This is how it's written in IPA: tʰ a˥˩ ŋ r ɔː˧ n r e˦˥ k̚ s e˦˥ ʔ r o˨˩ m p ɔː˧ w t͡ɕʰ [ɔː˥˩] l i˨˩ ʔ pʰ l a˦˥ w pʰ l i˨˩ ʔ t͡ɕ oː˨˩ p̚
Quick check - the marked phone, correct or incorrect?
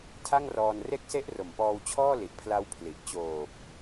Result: correct